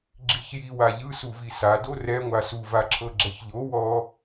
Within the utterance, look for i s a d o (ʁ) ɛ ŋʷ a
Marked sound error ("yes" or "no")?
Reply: yes